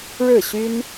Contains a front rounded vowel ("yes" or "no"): yes